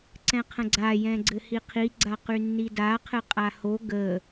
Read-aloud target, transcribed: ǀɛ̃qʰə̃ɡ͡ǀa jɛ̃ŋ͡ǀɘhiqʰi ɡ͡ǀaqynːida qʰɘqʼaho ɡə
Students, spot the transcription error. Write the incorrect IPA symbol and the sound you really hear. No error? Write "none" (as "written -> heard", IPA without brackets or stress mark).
ŋ͡ǀ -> ɡ͡ǀ